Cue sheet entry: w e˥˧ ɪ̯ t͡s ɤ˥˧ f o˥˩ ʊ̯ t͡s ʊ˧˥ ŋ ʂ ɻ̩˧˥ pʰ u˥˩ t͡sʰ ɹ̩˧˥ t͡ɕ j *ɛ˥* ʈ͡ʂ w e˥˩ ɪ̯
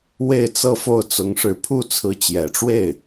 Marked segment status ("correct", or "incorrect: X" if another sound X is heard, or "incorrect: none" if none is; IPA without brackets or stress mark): incorrect: ɛ˨˩